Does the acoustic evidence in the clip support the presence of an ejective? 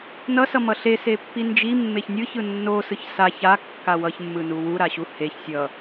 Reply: no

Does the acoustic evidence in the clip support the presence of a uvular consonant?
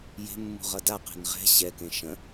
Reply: yes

